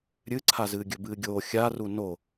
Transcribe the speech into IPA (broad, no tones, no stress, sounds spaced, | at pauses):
ɾʲ ɨ ǀʰ a z ɨː ɡʲ ɵ b ɨː ɡʲ oː xʲ a r u n o